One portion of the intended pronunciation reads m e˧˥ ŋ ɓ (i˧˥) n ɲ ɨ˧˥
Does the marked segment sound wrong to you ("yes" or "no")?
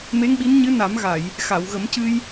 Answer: no